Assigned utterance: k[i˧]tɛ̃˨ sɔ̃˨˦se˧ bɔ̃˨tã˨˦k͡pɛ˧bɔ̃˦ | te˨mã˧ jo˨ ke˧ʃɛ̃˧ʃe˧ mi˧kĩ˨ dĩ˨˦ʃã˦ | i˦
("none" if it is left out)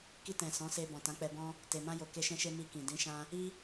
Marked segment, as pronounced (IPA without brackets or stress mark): i˧